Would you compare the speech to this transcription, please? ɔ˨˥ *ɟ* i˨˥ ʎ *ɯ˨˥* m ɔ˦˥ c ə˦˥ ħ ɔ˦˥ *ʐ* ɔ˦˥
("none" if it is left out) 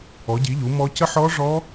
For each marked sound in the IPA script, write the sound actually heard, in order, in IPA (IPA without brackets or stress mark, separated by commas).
ɟ, u˨˥, ʐ